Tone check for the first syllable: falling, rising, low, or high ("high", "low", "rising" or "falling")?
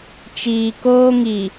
low